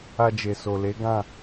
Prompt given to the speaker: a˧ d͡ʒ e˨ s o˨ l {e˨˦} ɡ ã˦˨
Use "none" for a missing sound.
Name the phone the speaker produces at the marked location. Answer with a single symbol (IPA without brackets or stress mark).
e˨˦